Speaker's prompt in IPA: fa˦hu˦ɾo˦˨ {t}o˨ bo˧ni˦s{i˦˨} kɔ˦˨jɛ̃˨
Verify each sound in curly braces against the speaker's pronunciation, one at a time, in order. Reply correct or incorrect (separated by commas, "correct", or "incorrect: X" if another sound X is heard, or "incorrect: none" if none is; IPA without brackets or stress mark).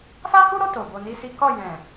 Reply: correct, incorrect: i˦